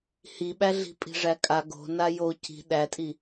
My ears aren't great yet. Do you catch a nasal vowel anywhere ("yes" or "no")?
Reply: no